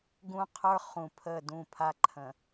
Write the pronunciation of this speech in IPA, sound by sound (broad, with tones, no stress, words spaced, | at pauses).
ɡũ˦qʰə˞˦ χũ˨ pʰə˦˨ dũ˦˨pʰa˦ ǃʰə̃˨